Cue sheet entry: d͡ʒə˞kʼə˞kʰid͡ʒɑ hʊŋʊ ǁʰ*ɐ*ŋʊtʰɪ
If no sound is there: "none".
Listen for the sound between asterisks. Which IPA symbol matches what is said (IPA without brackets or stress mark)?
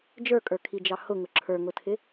ə˞